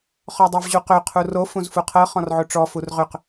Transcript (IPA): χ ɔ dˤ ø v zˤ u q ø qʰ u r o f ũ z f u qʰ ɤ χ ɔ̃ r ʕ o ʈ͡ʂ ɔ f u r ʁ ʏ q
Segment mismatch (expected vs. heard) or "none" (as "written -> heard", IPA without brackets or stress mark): zˤ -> ʑ